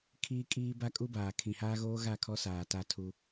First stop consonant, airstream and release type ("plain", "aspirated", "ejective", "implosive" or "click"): aspirated